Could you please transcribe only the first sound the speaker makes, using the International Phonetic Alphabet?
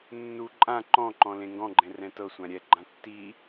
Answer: nː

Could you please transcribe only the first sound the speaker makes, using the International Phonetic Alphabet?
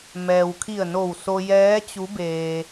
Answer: m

